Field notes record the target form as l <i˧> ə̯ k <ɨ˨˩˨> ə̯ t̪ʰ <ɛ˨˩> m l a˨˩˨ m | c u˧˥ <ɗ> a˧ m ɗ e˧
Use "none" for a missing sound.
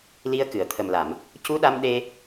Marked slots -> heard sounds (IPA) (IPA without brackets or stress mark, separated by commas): i˧, ɨ˨˩˨, ə˨˩, ɗ